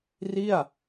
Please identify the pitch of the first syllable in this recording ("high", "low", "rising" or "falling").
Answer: falling